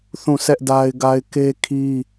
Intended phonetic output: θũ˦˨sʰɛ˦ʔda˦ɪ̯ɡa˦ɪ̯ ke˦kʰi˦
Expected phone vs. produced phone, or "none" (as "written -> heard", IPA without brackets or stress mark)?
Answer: none